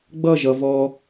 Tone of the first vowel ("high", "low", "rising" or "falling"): falling